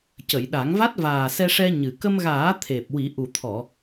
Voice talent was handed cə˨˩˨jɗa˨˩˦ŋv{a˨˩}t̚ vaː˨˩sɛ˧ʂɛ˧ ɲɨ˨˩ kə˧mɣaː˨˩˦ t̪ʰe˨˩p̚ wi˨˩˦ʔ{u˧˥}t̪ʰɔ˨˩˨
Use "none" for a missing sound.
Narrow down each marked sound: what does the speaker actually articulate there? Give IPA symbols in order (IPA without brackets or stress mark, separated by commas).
a˦˥, u˨˩